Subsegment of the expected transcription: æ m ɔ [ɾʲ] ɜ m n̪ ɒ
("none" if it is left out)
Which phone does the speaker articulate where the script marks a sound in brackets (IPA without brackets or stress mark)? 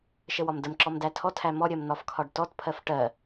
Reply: ɾʲ